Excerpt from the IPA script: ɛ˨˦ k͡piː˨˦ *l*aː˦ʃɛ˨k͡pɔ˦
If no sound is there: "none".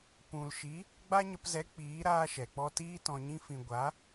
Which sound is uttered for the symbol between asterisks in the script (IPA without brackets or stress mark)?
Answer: ɾ